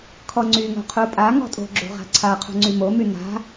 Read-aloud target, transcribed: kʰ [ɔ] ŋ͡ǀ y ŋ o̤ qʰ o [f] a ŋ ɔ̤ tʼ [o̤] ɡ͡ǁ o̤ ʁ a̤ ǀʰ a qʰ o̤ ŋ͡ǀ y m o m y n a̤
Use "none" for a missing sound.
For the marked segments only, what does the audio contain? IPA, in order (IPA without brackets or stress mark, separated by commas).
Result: ɔ, pʼ, o̤